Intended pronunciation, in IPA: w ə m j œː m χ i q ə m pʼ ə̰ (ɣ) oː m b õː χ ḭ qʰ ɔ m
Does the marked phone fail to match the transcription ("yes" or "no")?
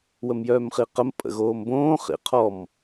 no